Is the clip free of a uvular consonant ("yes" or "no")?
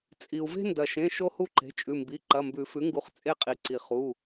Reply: no